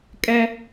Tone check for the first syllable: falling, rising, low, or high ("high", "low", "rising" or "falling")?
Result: high